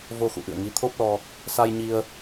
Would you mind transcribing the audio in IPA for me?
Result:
v o˧ x ṵ˧˨ ʔ ɨ̰˧˨ ə̯ ŋ i˨˦ t̪ʰ o˦˥ p̚ l ɔ˧ | s a˧ j ɲ i˧ ə̯

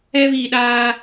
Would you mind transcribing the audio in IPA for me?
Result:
ɛ˦ β i˨ ɗ aː˦

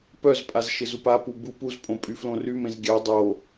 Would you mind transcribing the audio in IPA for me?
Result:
p œ z pʼ a z ʃ ɪ z u p a p u b u p u z pʼ õ pʼ y f l õ r y m ẽ z ɡʲ a dˤ o

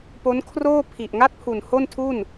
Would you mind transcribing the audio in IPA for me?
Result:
p o˦˥ n kʰ r oː˥˩ pʰ i˨˩ ʔ ŋ a˥˩ t̚ pʰ u˨˩ n h o˥˩ n tʰ u˥˩ n

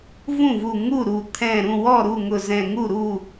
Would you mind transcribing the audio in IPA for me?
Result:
v ũ˥˩ v u˧˩ ŋ u˥˩ ɾ u˧˩ t̪ʰ ɛ̃˧˩ ɾ ũ˥˩ w ɔ˥˩ ɾ u˥˩ ŋ ʊ˧˩ z ɛ̃˧˩ ŋ u˥˩ ɾ u˥˩

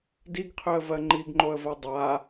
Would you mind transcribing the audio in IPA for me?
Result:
d i ɡ qʰ ø ə̯ v ɜ ŋ͡ǃ i ɡ ŋ͡ǃ o ə̯ v ɜ dˤ a

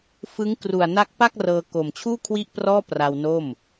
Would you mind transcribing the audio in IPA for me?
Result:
f ɯ˦˥ ŋ k r u˨˩ a̯ n a˦˥ k̚ p a˥˩ k̚ r ɤː˧ k o˨˩ m t͡ɕʰ uː˥˩ kʰ w i˥˩ ʔ p r ɔː˥˩ p r a˧ w n o˥˩ m

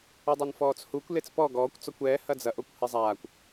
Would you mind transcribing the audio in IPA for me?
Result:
o dˤ ɛ n f ɔː t͡s h u kʷ l e t͡s p ɔ ɡ ɔː kʷ t͡s ɔ kʷ ɛː h ɐ d͡z ɐ ʔ o kʷ h e zˤ aː kʷ

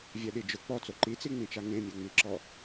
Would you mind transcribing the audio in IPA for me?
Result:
vʲ ɛ ɗ i d͡ʒ ʊ k͡p ɔ t͡s o ǃ i t͡s i ŋ͡m ĩ t͡ʃ a ŋ ẽ mʲ ɛ ŋ͡m i ǁ ɔ

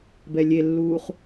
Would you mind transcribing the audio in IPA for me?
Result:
b ɛ lʲ e lː uː χ

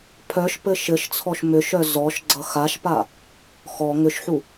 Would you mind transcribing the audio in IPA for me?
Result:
pʰ œ ʃ p ɘ ʃ ɘ ʃ t͡sʰ ɔ ʃ m ʏ ʃ œ z ɔ ʃ ɡ͡ǀ ʌ x a ʃ p a | x ɔ ŋ ʏ ʃ ħ u

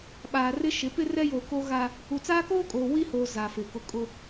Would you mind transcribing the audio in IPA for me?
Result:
ɓ aː˨ r ɪ˦ ʃ ɪ˨˦ p ɪ˦ r ɛ˦ j oː˨ k o˦ ɣ a˦ | u˨ t͡s aː˦ k oː˦ kʼ oː˨ w i˦ h oː˨ z a˨ f ɪ˨ k ʊ˦ kʼ ʊ˦

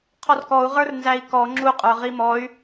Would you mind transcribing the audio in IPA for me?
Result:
qʰ ɔ r k ɔ u̯ ʁ ə˞ r n z æ i̯ k ɔ ŋ͡ǁ u qʼ ə˞ ʁ i m ɔ y̯

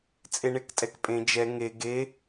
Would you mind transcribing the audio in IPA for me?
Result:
t͡sʼ e ɳ e k tʼ ɛ k pʼ ẽ d͡ʒ ɛ ŋ e ɡ e

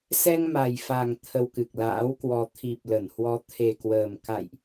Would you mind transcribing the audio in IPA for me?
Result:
s ɛ˧ ŋ m a˨˩ j f a˨˩ ŋ t̪ʰ ə˧ w k ɨ˨˩ k̚ l a̰ː˧˥ w k w ɔ˧ t̪ʰ i˨˩ p̚ l ə˧˩ n h w ɔ˨˦ t̪ʰ e˨˩ k w əː˨˩ m k a̰˧˨ j ʔ

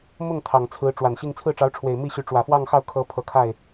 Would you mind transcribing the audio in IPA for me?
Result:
m ʊ˥˩ ŋ t̪ʰ ɑ˨˩ ŋ t͡sʰ ɹ̩˧˥ ʈ͡ʂ w a˨˩ n ɕ i˥˧ ŋ t͡sʰ ɹ̩˥˩ ʈ͡ʂ ɑ˧˥ ʊ̯ ʈ͡ʂʰ w e˨˩ ɪ̯ m i˥˩ ɕ y˧˥ ʈ͡ʂ w ä˨˩ f w ɑ˥˧ ŋ x ɑ˥˩ ʊ̯ kʰ ɤ˧˥ pʰ ɤ˧˥ kʰ a˥˩ ɪ̯

